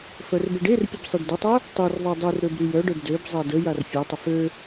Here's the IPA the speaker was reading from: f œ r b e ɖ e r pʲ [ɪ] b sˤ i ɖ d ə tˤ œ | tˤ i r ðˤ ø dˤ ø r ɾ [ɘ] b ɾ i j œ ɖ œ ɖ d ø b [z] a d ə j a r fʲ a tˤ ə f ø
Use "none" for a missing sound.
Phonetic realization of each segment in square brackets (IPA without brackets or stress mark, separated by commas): ə, ø, zˤ